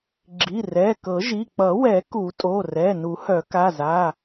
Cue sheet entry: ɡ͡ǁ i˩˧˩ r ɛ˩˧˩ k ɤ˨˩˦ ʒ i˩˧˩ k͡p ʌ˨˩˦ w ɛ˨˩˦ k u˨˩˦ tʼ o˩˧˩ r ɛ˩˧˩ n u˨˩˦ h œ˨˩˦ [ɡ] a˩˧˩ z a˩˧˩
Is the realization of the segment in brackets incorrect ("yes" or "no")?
yes